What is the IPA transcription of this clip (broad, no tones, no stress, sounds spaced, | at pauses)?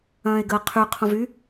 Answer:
ɐ̃ː e̯ ɡ əː qʰ y qʰ õ v y